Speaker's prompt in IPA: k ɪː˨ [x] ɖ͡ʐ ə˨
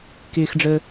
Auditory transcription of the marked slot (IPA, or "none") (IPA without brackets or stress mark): x